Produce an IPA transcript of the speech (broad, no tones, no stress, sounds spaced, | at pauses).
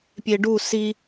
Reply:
pʲ e ɖ u s i